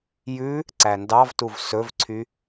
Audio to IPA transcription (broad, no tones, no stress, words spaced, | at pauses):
jʉ | ǀændɑvtuv sɵvǀʰy